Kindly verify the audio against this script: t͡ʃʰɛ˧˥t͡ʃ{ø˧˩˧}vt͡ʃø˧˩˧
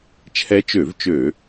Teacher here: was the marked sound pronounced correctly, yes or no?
yes